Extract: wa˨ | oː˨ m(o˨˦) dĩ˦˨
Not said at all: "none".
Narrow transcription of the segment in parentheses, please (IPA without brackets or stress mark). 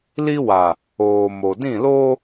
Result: o˨